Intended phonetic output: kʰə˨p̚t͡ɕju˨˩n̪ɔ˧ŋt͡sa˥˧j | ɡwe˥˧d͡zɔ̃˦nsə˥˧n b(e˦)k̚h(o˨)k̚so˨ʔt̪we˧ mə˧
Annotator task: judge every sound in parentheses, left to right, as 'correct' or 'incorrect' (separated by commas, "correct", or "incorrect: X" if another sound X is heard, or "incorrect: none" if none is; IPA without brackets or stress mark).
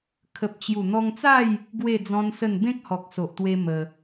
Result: incorrect: ẽ˦, incorrect: ɔ˨